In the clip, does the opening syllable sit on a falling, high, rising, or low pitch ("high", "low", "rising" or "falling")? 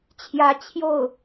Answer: rising